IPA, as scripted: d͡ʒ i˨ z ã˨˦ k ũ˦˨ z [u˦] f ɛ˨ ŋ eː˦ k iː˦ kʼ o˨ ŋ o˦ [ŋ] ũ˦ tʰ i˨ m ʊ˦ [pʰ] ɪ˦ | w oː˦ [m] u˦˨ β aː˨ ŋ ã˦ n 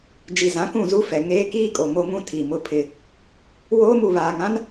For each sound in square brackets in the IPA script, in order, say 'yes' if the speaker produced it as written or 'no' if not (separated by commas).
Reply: yes, yes, yes, yes